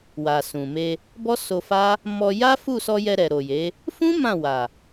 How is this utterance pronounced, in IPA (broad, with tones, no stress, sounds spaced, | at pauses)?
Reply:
w a˨ s ũ˨ m e˧ | b ɔ˦ s o˧ f a˦ | m ɔ˧ j a˦ f u˦˨ s ɔ˧ j ɛ˧ ɾ ɛ˨ ɾ o˨ j e˨˦ | f ũ˦ m ã˦˨ w a˨